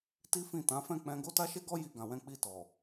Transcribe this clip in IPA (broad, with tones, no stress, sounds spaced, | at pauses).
t i˦ f ĩ˦˨ t ã˨˦ f ɛ̃˦˨ k͡p ɛ̃˧ ɡ o˦ t a˦ ʃ e˦ ɡ ɔ˦ j i˧ ɡ ã˨ w ɛ̃˧ k͡p i˧ t ɔ˨